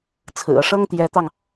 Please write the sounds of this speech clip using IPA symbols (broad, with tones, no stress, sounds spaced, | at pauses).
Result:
t͡sʰ ɹ̩˨˩ ɤ˦ ʂ ɤ˥ ŋ t̪ j ɛ˧˥ t̪ ɑ˧ ŋ